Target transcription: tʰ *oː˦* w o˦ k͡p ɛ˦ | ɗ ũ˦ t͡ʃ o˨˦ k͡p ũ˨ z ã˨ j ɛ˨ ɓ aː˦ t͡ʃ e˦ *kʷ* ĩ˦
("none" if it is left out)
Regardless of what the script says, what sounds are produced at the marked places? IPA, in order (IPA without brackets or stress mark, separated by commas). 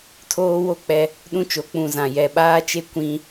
oː˦, kʷ